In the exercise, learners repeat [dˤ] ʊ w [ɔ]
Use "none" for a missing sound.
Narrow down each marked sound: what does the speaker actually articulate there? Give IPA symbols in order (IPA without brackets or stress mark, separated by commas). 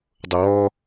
dˤ, ɔ